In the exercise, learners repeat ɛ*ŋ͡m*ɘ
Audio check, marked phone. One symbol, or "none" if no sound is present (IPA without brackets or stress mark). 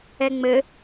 ŋ͡m